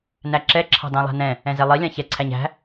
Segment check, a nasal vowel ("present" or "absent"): present